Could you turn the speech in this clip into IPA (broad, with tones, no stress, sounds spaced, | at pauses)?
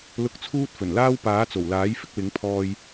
l ʊ˧ k̚ t͡sʰ uː˥ t̚ f ɵ˨˩ n l aː˥ w p aː˨˥ t͡s o˨˩ w l aː˨˥ j f ɪ˧ k̚ w ɪ˨˥ ŋ pʰ ɔː˧ j